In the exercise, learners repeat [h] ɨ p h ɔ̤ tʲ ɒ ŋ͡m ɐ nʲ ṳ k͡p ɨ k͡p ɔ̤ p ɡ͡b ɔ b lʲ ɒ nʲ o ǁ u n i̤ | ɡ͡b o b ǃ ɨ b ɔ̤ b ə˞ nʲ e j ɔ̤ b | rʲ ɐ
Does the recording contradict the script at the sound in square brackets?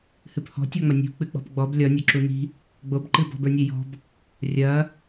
no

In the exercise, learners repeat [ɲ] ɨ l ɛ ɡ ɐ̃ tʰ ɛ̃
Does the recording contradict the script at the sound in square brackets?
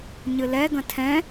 no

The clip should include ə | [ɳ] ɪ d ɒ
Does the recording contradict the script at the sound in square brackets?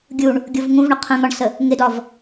yes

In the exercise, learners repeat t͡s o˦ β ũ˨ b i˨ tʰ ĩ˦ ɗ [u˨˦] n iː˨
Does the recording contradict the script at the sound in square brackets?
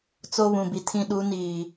no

